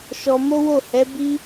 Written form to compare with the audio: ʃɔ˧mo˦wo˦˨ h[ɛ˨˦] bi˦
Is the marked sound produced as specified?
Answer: yes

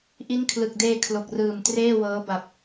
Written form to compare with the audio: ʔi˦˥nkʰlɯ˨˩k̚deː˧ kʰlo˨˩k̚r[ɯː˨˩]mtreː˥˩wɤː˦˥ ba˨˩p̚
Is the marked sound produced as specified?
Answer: yes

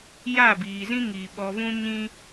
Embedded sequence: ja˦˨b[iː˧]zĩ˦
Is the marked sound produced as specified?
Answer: no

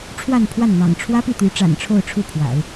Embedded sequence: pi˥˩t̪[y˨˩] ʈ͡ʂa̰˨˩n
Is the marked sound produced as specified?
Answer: no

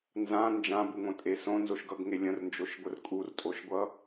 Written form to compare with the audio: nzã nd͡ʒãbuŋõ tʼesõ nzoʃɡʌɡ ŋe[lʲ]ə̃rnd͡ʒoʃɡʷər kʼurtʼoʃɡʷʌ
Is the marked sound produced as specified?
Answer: yes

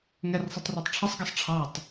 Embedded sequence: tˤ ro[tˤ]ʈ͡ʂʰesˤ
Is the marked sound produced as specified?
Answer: yes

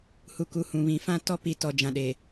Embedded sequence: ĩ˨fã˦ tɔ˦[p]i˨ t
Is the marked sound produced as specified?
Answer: yes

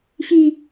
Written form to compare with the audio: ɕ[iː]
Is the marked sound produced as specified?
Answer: no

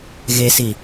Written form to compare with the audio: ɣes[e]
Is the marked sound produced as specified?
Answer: no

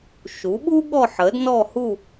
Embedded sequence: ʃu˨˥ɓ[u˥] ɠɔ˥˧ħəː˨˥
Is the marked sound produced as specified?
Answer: yes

